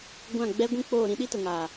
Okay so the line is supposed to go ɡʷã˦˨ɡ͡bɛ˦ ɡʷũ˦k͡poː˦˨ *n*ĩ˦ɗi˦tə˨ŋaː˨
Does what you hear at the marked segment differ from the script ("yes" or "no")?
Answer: yes